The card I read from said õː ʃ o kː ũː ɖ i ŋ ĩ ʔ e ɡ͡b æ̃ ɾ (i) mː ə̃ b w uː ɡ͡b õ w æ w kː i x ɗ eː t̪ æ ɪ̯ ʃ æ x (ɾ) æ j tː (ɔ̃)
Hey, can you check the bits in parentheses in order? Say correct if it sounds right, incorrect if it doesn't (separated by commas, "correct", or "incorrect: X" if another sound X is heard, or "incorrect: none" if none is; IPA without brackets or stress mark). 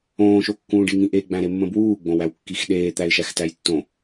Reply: incorrect: e, incorrect: t, incorrect: õ